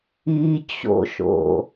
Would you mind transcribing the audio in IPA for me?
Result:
i t͡ɕ o̰ ʃ o̰

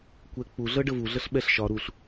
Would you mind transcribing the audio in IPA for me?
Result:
kʷ ɛ k͡p u ɮ ɤ ɖ ə v u ɮ ɤ ɬ ɓ ɛ ɬ ʃ ɒ ɾ u ɬ

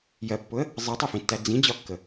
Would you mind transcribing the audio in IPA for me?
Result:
j ɜ pː ʊ ə̯ | zˤ i tˤ i f ĩ tː æ d͡z ĩ d͡ʑ ɒ kː ə

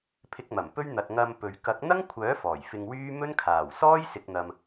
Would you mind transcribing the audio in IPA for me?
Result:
pʰ ɪ˧ k̚ m ɐ˨˩ m p ɵ˥ ɥ n̪ ɐ˨ t̚ ŋ ɐ˧ m p ɵ˨ ɥ k ɐ˨˥ k̚ n̪ ɐ˥ ŋ kʷʰ œː˨˥ f ɔː˨˩ j f ɪ˧ ŋ w yː˥ m ɵ˥ n kʰ aː˨˩ w s ɔː˥ j s ɪ˨ k̚ n̪ ɐ˨ m

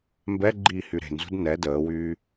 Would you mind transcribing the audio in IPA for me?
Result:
m b ɛ ɡ͡ǃ iː h y ɾ e̤ n z ṳ d n ɛ d əː w yː

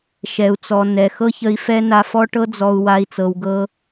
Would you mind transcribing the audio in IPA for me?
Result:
ʃ ɛ˨ u̯ t͡s ɔ˨ n ɛ˨ x ɤ˦ ç ə˧ i̯ f ɛ˦ n a˧ f ɔ˦ ʈ ɤ˧ d͡z ɔ˨ u̯ w a˧ i̯ t͡s ɤ˨ w ɡ ɤ˧

